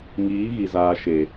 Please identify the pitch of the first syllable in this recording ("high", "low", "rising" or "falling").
rising